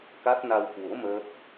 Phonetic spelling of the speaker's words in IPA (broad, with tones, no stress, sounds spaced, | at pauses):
k a˦˥ t̚ n a˧ w k w o̰˧˥ m əː˦˥ k̚